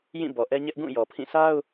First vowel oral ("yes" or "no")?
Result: no